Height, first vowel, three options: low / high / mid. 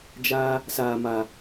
low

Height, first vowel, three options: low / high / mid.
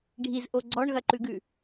high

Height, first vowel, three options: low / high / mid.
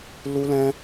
high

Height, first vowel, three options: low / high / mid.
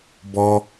mid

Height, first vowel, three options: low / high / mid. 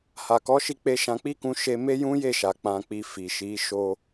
low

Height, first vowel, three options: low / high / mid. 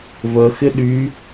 mid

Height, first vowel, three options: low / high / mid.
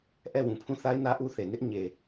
mid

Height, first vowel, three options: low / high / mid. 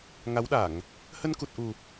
low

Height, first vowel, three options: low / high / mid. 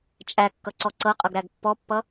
low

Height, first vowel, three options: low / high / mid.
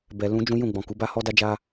mid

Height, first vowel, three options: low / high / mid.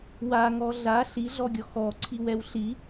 low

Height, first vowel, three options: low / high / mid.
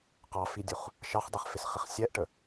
low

